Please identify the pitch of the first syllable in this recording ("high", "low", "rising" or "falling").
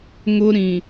high